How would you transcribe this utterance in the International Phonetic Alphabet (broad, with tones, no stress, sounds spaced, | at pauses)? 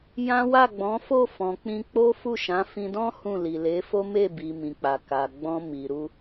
j ã˦ w a˦˨ ɡ͡b ɔ̃˨˦ f o˦˨ f ɔ̃˨ k͡p ĩ˧ k͡p o˦ f u˦˨ ʃ ã˨˦ f ĩ˧ d ɔ̃˦ h ũ˦˨ l i˨ l e˨˦ f o˦ m e˦˨ b i˨ m ĩ˨ k͡p a˨ k a˨ ɡ͡b ɔ̃˧ m i˨ ɾ u˧